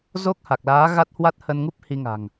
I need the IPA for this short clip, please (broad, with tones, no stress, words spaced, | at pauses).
zo˦˥k̚ha˨˩k̚laː˨˦ ɣa˦˥t̚hwa˦˥t̚hə˧nŋu˦˥p̚ hi˧ŋa̤˨˩ŋ